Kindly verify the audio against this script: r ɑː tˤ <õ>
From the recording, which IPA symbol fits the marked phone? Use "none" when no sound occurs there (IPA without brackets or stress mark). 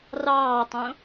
õ